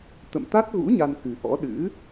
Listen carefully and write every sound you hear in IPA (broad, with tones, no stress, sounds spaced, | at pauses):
t̪ ə̰˧˨ m t̪ a˦˥ t̚ ɣ ṵ˧˥ ɲ a˧ n k ɨ˨˩ ʔ ɔ̰˧˥ ɗ ɨ̰˧˥